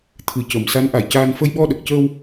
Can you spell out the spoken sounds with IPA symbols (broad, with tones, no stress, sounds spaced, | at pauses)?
t̪ʰ ɨ˨˩ c ə˨˩˨ m s a˧˥ n ʔ a˨˩˨ j c aː˧ n f ə˧ j ɓ ɔ˧ ɗ ə˨˩ k̚ c əː˧ w